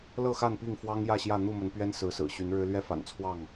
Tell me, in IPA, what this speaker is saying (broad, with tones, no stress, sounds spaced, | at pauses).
l ɤ˥˨ x a˥˨ n p i˥˨ ŋ f w ɑ˦ ŋ j ä˥˨ ɕ j ä˥˨ n̪ u˥˨ m ə˨˦ n p ɥ ɛ˦ n s ɹ̩˨˦ s ɹ̩˨˩ ɕ y˨˦ n ɻ ɻ̩˦ l ɥ ɛ˦ f a̰˨˩ n t͡sʰ w ɑ˥˨ ŋ